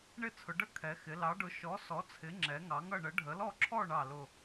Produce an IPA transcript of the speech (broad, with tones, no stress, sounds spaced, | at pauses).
ɳ ɪ˥˧ t͡sʰ ʊ˨˦ ɖ ə˥˧ kʰ ɛ˨˦ x ɪ˨˦ l ɑ˨˦ ɖ ʊ˨˦ ʃ ɔ˨˦ s ɔ˨˦ t͡sʰ ɪ˨˦ ŋ͡ǁ ɛ˨˦ ŋ ɑ˨˦ ŋ ʌ˥˧ ɳ ə˨˦ ɖʱ ə˨˦ l ɔ˥˧ ǁʰ ɔ˥˧ ɳ ɑ˥˧ l ʊ˥˧